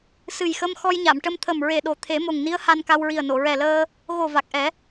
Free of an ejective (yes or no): yes